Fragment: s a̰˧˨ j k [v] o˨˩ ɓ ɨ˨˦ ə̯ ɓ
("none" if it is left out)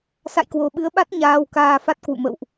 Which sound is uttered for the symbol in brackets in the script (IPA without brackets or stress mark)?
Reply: w